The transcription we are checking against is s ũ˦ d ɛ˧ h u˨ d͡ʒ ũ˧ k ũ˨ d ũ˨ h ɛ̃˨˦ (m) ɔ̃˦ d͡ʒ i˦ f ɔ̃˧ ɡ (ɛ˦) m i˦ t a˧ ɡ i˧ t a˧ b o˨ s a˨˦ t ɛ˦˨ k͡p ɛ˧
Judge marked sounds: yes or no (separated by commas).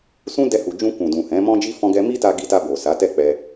yes, no